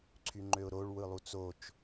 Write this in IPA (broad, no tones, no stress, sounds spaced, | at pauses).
ǀʰ y ŋ͡ǃ ø ʊ̯ ɾ o ɭ w ɯ lˠ u t͡s o t͡ʃ